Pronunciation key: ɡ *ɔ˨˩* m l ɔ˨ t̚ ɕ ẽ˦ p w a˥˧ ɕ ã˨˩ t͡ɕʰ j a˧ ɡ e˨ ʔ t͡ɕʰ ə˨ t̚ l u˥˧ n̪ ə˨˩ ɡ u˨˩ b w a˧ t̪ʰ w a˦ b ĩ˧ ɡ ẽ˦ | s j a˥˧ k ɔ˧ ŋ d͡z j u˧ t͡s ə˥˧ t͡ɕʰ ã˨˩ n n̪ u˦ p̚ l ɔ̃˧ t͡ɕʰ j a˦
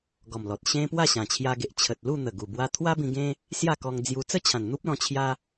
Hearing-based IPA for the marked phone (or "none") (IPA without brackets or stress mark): ɔ˨˩